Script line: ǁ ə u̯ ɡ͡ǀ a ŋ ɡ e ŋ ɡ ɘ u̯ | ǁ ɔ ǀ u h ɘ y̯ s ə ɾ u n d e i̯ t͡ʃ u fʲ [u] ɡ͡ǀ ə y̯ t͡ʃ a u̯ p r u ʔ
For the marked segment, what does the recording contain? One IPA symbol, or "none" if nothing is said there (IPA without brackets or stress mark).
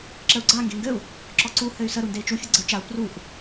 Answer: u